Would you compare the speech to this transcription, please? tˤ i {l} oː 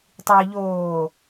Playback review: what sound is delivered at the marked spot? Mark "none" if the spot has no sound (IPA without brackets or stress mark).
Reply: ʎ